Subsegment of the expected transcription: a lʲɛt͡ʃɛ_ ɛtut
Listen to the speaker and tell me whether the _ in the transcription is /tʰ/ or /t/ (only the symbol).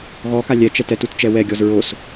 t